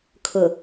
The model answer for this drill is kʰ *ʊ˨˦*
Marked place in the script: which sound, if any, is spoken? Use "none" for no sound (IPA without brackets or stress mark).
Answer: ʊ˨